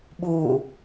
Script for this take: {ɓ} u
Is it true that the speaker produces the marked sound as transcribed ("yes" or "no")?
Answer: yes